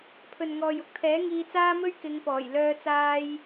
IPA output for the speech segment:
pʰ ɵ˨ n ŋ ɔː˨ j ʊ˥ k̚ t̪ʰ ɛː˨˥ ŋ iː˧ t͡s aː˥ m ɵ˥ ɥ k ɪ˨˧ ŋ p ɔː˨˩ j l œː˧ t͡s aː˧ j

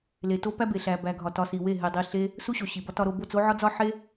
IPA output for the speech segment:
l e˨ t o˦ p æ˦ b e˨ ɬ æ˨ b æ˨ ɡʱ ɒ˨ t ɒ˧ s i˨ w e˦˨ ɦ e˧ dˤ i˧ ɬ e˦ | s u˦ ɕ o˨ ɕ i˨ b ɒ˦ t ɒ˧ ɾ o˧ b o˦˨ t͡s o˦ ʕ ɒ˦ d͡z ɒ˦ ħ e˦

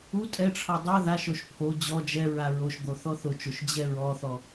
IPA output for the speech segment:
u tʼ ɛ ʈ͡ʂʰ ɔ dˤ o ð a ʃ o ʃ pʰ o d͡ʑ ɔ d͡ʒ ɛ ɹ a ɹ o ʃ d̪ o θ ɔ θ ʊ t͡ʃ o ʃ d͡ʑ ɛ ɹ ɔ θ ɔ

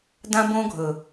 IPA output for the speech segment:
d ã˦ b õ˦ ɡʱ ɵ˨

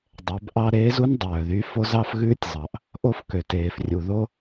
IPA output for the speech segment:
dˤ ɛ˩˧ b ʔ ɑ˥ ɾ eː˧˥ z u˥ n dˤ œː˩ ð y˧˥ f o˧˥ z ɑ˥ f ɣ ʉː˥ tʲ zˤ ɑ˩ ʔ | ʔ o˥ f k ø˩ t eː˩ f rʲ u˩ ð o˥

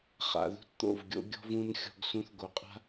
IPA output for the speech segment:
χ a̰˨ ð ṳ˦ t t̪ o̰˦˨ v ɡʲ o̰˦ ɡʲ ɔ̤˦ v ũ˦ n xʲ ɔ̤˦ ɡ s ũ˦ θ ɡ o˨ qʼ a̤˦

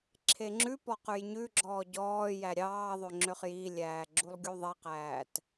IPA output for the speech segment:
ǁʰ e ŋ͡ǁ ʉ p ɔ q ʉ j ɲ ʉ ɡ͡ǁ ɔː ɟ ɔː j æ ɾʲ ɑː ðˤ ø ŋ͡ǁ ø χ j i lʲ æː ɡ͡ǁ u lˠ ɡʲ u ðˤ i q æː t

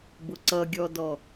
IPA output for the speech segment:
b ʊ ǀ ʌ ɡʲ ɔ d ɔ

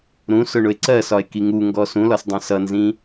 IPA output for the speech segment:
ɾ ũ s ʊ ɳ ʊ e̯ ǀ ɜ s ɒ e̯ k i ŋ u ŋ ɡ ɔ s ũ l ɒ s dˤ ə̃ s ʌ n z ĩ

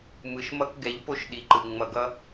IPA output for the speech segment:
m ɯ˨ ʃ m ʌ˦ k ɡ ɛ˨˦ ʎ p o˦ ʃ ɗ i˨ ǃ ɯ˨ ŋ͡m ʌ˨ ɡ ʌ˦

